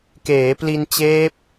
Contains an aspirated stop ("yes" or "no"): no